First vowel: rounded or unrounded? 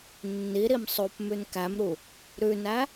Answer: unrounded